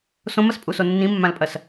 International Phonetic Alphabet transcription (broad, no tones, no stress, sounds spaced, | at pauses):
s õ m ɐ s pʼ u s o nː ĩ mː ã l pʼ ɐ s